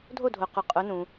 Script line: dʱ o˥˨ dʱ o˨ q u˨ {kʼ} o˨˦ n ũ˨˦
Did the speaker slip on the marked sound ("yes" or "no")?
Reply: yes